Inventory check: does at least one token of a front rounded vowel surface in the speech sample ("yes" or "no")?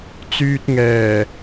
yes